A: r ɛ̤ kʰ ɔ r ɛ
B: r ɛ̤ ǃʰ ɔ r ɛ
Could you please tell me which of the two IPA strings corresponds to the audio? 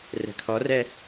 A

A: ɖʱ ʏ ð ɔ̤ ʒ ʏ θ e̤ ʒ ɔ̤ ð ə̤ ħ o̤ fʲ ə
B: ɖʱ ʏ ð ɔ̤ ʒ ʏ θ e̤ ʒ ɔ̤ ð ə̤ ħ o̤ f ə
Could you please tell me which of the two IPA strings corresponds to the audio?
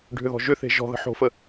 B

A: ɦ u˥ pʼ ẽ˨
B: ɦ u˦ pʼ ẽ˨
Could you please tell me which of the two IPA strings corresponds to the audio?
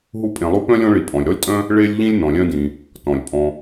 B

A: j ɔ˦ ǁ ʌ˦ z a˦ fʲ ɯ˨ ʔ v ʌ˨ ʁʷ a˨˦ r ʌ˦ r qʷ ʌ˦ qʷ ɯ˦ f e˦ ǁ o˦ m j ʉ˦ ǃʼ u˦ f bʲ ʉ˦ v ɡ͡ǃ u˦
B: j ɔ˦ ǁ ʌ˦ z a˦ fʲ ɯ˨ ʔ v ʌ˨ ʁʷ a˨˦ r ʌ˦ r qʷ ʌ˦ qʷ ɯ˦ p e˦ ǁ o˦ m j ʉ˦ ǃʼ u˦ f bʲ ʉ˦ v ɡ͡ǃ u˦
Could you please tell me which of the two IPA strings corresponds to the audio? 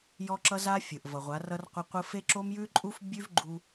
A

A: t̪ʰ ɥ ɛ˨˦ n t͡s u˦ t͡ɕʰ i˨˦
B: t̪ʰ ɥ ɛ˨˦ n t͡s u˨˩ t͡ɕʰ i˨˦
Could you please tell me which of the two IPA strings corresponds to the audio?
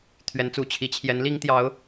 B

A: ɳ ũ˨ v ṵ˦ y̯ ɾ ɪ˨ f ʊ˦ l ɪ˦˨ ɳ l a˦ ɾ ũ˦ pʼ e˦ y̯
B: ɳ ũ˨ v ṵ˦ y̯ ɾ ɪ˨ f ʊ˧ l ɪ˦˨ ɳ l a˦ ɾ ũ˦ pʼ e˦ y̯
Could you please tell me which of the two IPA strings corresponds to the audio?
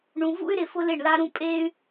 B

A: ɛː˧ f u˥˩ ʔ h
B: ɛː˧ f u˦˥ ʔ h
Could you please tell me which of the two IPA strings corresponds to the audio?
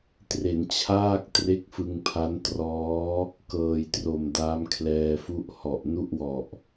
A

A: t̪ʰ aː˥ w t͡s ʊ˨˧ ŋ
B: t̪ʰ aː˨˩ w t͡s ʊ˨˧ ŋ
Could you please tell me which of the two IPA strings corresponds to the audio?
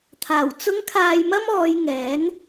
B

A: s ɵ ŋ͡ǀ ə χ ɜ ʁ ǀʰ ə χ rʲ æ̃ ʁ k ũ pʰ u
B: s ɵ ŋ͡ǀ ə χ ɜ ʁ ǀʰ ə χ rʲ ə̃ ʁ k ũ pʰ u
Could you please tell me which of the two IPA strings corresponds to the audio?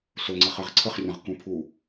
B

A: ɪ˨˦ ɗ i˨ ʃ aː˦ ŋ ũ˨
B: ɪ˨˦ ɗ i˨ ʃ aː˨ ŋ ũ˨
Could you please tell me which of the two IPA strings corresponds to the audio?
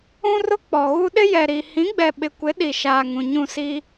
B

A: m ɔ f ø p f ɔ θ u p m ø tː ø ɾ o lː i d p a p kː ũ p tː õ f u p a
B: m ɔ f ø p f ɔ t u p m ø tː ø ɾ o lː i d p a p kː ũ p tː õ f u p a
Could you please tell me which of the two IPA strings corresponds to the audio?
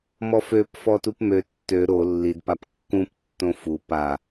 B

